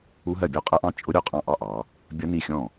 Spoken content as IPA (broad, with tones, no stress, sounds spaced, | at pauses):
u˦˥ ɦ ɜ˥˩ bʲ ɔ˥˩ qʼ ʌ˦˥ ʔ ɑ̃˦˥ t͡ʃʼ ʊ˦˥ ɾʲ ɔ˥˩ qʼ ɑ̃˥˩ ʔ ɑ˥˧ ʔ ɑ˩˧ | bʲ ʌ˦˥ n i˥˩ xʲ ɔ̃˥˩